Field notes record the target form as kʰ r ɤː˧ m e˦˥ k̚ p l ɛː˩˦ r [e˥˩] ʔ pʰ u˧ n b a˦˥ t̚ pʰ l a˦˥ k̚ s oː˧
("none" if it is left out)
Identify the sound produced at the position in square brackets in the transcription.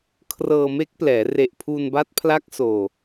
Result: e˨˩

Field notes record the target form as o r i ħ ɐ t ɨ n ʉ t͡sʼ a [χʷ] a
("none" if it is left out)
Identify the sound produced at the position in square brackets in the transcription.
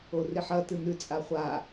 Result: χʷ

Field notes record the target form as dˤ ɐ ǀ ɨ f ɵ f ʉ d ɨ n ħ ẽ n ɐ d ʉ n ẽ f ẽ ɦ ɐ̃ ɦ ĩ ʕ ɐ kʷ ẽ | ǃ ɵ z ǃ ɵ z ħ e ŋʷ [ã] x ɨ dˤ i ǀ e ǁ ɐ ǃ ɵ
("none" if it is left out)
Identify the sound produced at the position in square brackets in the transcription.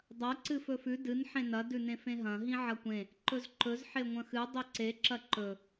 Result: ɐ̃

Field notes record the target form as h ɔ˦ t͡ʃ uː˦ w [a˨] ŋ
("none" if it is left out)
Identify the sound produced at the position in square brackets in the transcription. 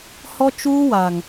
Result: a˨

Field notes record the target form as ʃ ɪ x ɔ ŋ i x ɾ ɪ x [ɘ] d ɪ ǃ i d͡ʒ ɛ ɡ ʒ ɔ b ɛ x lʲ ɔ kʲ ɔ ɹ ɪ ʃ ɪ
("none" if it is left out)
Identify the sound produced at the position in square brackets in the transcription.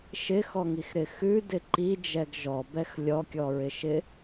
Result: ʉ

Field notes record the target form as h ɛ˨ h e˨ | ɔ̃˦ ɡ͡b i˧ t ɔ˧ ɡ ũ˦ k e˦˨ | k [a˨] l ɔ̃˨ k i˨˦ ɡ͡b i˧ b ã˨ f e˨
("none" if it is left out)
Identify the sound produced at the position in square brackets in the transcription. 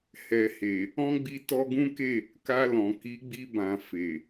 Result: a˧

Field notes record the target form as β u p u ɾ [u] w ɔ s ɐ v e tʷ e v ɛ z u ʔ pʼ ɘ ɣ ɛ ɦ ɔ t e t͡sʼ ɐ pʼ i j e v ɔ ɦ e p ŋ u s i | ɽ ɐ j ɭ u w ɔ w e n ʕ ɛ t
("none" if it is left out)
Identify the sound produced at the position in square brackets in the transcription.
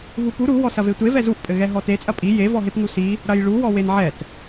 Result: u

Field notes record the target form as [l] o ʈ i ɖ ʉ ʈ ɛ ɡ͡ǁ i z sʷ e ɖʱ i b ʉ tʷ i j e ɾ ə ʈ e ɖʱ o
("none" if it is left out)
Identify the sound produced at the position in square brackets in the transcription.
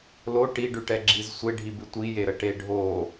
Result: l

